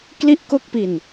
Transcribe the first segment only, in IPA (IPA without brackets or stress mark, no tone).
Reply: k